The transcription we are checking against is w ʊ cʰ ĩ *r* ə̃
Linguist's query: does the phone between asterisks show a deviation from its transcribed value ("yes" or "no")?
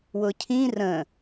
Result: no